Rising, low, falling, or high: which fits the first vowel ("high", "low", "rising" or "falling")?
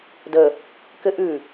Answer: low